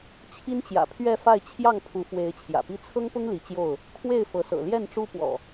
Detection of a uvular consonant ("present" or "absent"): absent